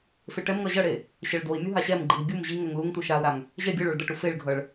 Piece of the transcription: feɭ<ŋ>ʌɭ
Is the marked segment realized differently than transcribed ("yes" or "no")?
yes